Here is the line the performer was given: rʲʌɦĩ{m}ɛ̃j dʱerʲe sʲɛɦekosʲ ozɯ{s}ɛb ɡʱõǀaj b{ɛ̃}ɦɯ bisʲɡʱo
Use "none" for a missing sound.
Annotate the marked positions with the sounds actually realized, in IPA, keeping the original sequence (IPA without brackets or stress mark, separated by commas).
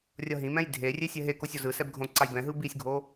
m, s, ɛ̃